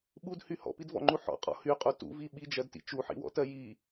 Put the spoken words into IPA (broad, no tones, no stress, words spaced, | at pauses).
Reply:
ɓudhy hɔ̰pidvɔ̰ŋ͡ǃu ħɔ̰qʼɔ̰ hyqʼu tṵvi ɓid͡ʒɜdtḭ t͡ʃuħḭwɔ̰tɜ ji